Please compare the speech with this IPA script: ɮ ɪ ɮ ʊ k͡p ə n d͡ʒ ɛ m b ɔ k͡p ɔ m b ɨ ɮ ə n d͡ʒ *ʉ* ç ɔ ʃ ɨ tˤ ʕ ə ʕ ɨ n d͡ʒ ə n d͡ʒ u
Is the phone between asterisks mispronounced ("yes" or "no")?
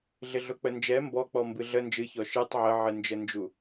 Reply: yes